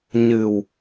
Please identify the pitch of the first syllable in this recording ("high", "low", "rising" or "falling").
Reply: low